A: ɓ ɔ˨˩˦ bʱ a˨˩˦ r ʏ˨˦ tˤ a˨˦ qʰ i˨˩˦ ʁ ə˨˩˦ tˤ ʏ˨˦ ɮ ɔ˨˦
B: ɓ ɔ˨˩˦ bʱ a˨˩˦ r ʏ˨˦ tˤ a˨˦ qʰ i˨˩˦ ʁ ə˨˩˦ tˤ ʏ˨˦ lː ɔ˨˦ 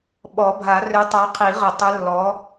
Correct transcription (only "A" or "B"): B